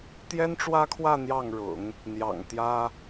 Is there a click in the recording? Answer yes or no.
no